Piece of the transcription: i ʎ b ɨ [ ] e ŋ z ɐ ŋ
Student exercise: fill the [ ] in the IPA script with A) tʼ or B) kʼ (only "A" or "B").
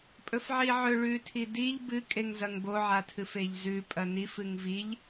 B